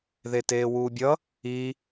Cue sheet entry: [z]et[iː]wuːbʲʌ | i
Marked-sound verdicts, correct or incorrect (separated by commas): incorrect, incorrect